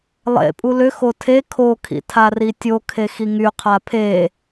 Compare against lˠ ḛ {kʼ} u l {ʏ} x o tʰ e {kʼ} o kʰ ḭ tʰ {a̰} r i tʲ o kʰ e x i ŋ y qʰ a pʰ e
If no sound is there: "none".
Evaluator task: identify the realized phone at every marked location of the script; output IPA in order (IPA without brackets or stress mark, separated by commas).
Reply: pʼ, ʏ, kʰ, a